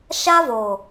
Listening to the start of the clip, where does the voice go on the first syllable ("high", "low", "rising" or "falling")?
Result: high